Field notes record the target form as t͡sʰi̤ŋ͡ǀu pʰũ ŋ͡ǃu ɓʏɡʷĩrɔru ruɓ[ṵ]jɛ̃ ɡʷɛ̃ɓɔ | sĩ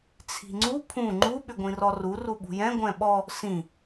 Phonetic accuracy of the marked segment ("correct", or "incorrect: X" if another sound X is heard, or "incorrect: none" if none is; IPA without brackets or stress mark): incorrect: ṳ